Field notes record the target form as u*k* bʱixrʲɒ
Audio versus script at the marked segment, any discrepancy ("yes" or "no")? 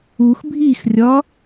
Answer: yes